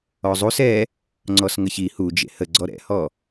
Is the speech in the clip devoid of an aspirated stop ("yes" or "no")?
yes